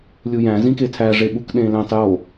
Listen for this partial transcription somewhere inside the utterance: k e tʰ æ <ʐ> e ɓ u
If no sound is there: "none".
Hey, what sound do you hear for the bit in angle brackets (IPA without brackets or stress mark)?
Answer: ʐ